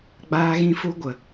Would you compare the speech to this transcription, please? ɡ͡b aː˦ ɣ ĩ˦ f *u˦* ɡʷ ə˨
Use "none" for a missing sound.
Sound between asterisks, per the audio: u˦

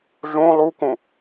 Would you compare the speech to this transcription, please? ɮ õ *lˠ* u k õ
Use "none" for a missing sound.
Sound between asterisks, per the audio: lˠ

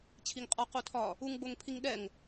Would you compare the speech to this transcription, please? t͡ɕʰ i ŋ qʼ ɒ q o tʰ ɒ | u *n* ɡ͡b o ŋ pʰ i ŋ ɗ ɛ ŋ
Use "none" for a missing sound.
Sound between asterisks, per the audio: ŋ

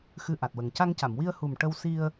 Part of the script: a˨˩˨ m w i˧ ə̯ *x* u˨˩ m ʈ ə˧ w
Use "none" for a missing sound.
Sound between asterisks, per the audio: h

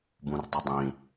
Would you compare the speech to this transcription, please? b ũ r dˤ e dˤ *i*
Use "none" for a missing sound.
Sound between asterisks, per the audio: ĩ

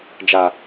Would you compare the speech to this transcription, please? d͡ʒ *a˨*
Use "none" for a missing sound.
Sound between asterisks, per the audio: a˨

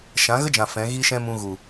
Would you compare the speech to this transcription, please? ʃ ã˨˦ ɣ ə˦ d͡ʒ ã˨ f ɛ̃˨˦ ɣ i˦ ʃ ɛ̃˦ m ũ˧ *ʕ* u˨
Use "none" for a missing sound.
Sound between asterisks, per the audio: ɣ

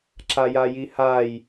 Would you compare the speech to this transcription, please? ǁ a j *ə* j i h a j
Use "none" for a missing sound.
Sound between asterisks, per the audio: a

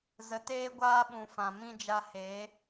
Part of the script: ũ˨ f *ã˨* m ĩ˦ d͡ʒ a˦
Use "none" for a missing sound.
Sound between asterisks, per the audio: ã˨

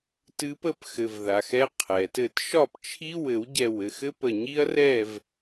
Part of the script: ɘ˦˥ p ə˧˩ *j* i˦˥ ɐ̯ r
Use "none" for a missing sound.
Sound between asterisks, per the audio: ɲ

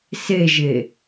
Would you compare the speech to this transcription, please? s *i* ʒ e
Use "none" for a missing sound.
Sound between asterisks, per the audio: e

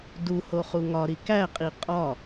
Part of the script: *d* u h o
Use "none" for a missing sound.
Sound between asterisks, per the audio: d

